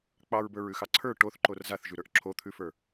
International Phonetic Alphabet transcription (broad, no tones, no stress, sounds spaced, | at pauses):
k͡p ɑ ɹ b ə˞ ɹ ʉ x ɑ ǀʰ ə˞ ʈ o θ ǃ o r z a θ ʒ ʉ ɾ ə˞ ʔ ǁʰ o t̪ʰ ʉ f ə˞